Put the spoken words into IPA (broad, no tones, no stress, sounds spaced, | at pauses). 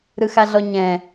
ɾ ɯ x a ɮ ɔ ɲ ɛ̃